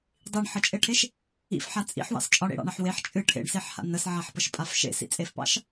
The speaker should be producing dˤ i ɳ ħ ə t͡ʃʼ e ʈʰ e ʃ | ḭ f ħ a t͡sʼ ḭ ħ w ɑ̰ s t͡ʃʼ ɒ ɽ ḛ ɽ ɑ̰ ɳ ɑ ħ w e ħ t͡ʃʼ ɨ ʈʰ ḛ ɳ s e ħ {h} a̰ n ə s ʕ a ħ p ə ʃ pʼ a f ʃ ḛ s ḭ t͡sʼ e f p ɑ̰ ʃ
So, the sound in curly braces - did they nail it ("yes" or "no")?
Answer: yes